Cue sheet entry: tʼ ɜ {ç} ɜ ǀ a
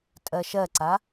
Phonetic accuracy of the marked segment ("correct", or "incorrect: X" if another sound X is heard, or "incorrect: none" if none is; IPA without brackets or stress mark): incorrect: ʃ